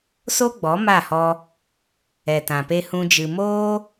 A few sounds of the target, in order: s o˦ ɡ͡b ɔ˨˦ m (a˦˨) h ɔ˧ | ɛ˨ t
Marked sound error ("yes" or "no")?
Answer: no